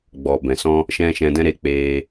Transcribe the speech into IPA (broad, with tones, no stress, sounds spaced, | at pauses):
ɡ͡b ɔ˨ b ɛ̃˨ s ɔ̃˦ | ʃ ɛ̃˦ ʃ ɛ̃˧ d ɛ̃˦ ɾ e˧ k͡p eː˧